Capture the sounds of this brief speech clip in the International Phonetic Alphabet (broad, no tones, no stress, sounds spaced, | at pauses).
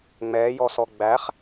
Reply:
ŋ͡m ɛː j ɔ s ɔ ɡ͡b æ χ